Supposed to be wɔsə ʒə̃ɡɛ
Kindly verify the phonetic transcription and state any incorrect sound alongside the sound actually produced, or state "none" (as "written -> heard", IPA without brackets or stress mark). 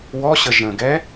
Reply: s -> ɕ